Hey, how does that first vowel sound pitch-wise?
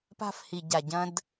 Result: high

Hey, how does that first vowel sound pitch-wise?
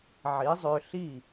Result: rising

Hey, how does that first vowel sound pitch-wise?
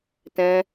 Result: high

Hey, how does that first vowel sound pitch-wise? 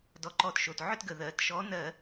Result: rising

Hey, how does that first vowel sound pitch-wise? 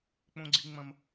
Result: high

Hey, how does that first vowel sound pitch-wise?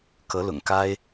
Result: rising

